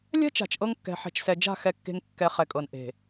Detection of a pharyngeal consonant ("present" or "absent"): present